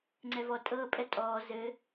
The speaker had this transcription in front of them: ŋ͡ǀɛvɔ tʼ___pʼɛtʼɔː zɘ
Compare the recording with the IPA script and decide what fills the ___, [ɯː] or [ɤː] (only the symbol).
ɤː